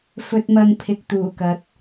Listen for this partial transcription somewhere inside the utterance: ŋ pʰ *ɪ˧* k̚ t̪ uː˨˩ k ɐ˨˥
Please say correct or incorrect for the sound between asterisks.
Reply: incorrect: ɪ˨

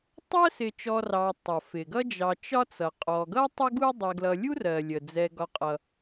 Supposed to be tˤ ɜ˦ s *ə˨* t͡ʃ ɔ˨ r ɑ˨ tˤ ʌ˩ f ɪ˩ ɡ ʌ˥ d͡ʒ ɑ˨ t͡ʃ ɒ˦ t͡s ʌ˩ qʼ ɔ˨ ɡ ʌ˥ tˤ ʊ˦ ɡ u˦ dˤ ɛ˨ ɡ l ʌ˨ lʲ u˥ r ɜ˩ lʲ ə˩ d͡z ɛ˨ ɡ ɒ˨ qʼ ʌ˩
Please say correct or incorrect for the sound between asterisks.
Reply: incorrect: ɪ˨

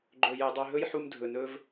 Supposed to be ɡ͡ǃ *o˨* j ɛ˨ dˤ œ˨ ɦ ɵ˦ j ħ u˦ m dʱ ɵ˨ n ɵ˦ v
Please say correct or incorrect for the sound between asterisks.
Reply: incorrect: ɵ˨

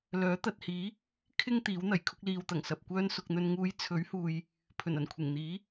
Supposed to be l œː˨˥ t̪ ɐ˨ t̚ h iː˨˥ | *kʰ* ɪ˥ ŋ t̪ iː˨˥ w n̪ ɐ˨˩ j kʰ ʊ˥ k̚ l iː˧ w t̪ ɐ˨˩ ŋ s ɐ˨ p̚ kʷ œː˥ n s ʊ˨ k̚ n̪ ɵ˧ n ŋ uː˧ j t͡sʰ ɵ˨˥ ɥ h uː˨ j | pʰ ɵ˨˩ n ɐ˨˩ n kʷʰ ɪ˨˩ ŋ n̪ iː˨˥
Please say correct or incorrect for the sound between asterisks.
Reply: correct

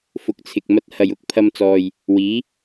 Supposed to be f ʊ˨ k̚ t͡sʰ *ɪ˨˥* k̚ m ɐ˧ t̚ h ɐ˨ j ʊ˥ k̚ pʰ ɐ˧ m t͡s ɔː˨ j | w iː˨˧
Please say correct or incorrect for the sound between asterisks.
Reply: incorrect: ɪ˨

